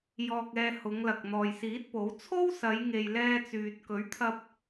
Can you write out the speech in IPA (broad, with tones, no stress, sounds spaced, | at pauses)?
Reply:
j ɔː˧ k̚ ɛː˧ h ʊ˨˧ ŋ l ɐ˨ k̚ n̪ ɔː˨ j s iː˨˥ t̚ p o˨˥ w t͡sʰ o˥ w s ɐ˨˧ j ŋ e˨ j l ɛː˧ t͡s yː˨ t̚ k ɵ˨˥ ɥ t̪ʰ ɐ˧ p̚